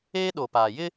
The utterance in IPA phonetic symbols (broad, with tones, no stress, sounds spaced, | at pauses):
eː˦ ɗ o˨ p aː˨ j ɪ˦